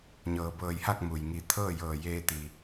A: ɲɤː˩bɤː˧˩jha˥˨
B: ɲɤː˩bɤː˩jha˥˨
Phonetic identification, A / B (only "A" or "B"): A